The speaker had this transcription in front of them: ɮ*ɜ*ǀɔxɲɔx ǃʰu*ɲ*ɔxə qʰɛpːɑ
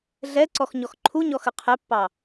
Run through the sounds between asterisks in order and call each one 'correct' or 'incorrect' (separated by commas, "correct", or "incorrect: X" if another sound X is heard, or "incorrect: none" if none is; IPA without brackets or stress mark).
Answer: incorrect: ɛ, correct